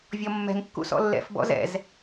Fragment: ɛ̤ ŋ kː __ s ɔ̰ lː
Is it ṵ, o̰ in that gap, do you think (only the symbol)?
ṵ